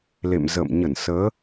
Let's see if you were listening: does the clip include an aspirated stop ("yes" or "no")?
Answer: no